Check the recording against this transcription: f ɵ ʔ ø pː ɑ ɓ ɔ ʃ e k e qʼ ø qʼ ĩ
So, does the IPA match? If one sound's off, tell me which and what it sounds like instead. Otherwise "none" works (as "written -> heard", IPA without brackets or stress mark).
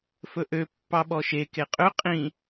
none